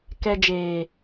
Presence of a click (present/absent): absent